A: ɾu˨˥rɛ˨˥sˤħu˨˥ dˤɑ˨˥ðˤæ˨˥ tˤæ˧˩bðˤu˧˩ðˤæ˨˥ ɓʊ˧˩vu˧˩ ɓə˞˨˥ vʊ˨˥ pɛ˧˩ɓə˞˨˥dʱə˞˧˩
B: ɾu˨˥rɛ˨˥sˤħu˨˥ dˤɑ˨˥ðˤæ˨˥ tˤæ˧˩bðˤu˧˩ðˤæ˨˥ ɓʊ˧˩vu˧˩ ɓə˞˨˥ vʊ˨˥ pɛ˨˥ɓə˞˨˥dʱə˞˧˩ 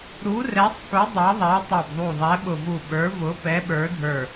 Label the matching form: B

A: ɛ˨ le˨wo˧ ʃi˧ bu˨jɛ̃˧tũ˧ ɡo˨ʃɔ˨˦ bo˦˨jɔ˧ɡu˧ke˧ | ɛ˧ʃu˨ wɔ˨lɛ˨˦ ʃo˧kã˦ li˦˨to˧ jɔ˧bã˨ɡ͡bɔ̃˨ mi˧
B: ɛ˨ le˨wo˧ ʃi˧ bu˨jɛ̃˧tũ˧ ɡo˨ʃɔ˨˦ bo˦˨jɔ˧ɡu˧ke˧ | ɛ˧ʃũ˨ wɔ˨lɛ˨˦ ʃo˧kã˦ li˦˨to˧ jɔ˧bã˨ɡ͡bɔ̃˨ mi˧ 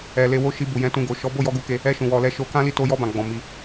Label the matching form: B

